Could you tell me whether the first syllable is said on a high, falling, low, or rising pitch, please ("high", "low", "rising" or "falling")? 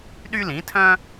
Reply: high